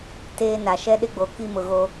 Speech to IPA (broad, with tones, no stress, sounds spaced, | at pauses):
t eː˦ n a˨ ʃ ɛ˦ ɗ ɪ˦ ɡ͡b o˨ k i˦ m ʊ˨ ɣ o˦